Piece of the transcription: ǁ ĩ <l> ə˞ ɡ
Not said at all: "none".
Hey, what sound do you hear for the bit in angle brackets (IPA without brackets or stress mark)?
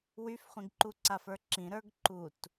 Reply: ɾ